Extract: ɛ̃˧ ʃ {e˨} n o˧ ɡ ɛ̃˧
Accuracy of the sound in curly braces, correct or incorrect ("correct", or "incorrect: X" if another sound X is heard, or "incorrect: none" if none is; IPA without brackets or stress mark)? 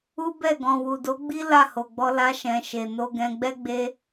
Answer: correct